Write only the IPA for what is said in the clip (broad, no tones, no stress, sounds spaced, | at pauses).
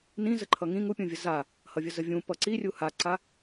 n ĩ z ə ǃʰ ʌ ŋ ĩ ŋ u pʲ ũ vʲ ə z a | h ʌ vʲ ə z ə vʲ ũ p ʌ ǀ i rʲ u h a ǀ a